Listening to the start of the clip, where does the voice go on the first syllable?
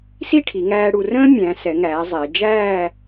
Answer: falling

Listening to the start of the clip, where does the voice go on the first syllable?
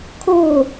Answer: falling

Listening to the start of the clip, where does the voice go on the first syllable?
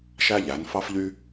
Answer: high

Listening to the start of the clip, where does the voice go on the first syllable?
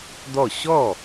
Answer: falling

